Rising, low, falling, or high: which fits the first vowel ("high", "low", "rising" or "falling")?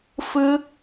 high